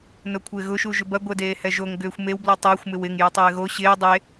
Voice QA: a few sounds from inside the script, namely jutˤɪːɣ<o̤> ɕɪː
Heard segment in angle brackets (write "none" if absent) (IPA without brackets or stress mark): o